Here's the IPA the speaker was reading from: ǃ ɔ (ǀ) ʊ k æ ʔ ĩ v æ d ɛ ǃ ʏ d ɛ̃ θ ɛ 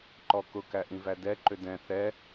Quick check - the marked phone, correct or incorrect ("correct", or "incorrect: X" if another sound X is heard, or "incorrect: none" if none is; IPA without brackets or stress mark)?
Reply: incorrect: k